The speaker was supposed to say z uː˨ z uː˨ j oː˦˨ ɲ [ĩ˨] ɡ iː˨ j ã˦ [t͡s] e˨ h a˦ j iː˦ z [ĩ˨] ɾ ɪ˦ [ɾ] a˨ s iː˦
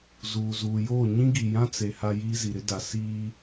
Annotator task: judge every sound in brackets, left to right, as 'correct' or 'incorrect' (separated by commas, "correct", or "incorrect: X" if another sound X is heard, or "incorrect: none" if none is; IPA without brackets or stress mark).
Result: incorrect: ĩ˦, correct, incorrect: i˨, incorrect: d